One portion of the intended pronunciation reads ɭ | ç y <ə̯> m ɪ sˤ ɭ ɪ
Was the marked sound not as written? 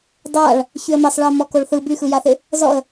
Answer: no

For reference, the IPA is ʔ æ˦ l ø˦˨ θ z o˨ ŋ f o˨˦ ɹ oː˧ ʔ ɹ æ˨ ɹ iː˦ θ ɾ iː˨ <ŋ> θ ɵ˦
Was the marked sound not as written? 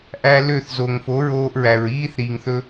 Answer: no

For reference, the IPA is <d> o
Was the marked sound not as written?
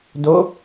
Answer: no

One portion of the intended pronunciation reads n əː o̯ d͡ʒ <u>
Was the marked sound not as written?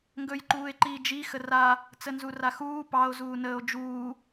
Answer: yes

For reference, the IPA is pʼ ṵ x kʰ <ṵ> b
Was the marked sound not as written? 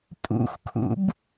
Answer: no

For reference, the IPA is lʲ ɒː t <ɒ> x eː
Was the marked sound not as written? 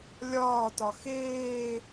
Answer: no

